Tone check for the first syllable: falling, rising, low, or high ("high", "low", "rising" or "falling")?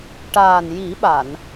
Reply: low